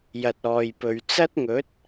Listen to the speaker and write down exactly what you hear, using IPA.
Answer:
jɐ˨t̚ɔː˨jpɵ˨ɥ t͡sɐ˥t̚ŋɵ˨˥t̚

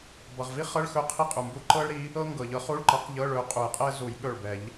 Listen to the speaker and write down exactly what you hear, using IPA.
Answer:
bʌ˩ʁvi˥χɤ˧˥˧ɭxɵ˧˥ qʰi˥qʼu˩mbu˥ ǃɤ˥ɭɾi˧˥ | ɤ˥ ŋɡɤ˩ʎɤ˧˥ χu˧˥˧ɭǃʌ˨˩˦qʎɤ˧˥˧ ɭɵ˧˥qʼu˨˩˦jqʼɛ˥ zu˨˩˦jɠɵ˧˩ɭbɛ˨˩˦ʎ

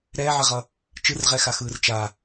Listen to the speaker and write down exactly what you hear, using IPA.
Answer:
ɾɛːʕɛʁʌ | t͡ʃɯrʁɛxaxɯːr t͡ʃa

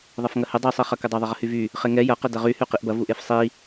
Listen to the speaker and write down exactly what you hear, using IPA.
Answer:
ðˤɐfŋɐhɪ dˤi sˤiχɐkɪdˤɐ ðˤəʁəhyvy | χeŋɛ jɐ qɪdɐʁy hyqiʔbɐ vuʔefsˤi

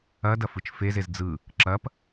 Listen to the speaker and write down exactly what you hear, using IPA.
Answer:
ɐdɐ fɯt͡ʃfezez d͡zɯ | ǁɐp

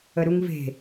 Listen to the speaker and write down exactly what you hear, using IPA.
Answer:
əɾuŋve̤

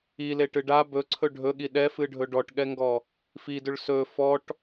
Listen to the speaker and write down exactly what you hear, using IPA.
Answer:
ileʈɨ ɖa bɵǀʰɵ ɖʱɵɠi ɗɛfɨɖʱɵ ɖɔʈɠɛŋɡɔ | fidʏɭ sɵ fɔʈ

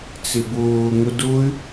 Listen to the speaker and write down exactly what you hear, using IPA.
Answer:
t͡sɪbʊː ŋʊdʊy̯

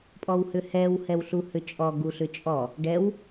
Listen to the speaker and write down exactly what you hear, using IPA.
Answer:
pʼɔwhʏhɛw hɛwɬuhʏt͡ʃʼɔ ɡuɬʏt͡ʃʼɔ | ɖɛw

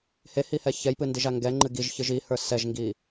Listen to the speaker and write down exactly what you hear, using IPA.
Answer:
hehihɛ çɛjpɨndiʒa ŋɡɛŋ͡ǃɨ ɡiʒçɨʒ ihə˞ sɛʒŋɡi

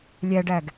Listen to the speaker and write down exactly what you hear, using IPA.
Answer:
lʲæɖæɡ

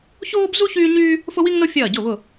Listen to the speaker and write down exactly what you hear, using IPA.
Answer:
çoː˥bzu˥ çyː˥ɲyː˥ | fʊ˥wi˥ŋno˥ fʲɐː˧˩ɟʊ˧˩ βʊ˧˩

